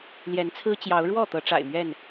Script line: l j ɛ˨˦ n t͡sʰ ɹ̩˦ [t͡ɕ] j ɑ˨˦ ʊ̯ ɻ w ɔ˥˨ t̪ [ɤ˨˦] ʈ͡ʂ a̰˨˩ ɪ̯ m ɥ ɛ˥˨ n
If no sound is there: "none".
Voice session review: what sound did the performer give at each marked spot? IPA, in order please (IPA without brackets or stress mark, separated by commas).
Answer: t͡ɕ, ɤ˨˦